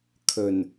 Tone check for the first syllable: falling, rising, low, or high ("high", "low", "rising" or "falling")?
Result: low